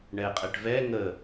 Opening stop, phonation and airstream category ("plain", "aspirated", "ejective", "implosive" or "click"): ejective